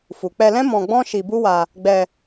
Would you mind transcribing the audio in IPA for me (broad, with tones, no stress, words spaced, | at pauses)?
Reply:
fu˨k͡pɛ˧lɛ̃˦ mɔ̃˧ɡ͡bɔ̃˦ ʃi˧bu˦wa˧ | ɡ͡bɛ˧